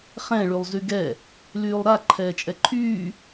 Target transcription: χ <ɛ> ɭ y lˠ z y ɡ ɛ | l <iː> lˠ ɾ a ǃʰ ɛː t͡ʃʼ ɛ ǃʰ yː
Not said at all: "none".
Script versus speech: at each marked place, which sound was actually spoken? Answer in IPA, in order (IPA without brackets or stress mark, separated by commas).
ɛ̃, yː